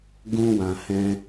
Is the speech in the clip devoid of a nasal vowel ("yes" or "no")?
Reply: no